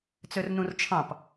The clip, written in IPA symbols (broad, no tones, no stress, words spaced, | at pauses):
t͡sørnũrt͡ʃʰɑ̃p